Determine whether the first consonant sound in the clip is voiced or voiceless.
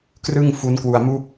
voiceless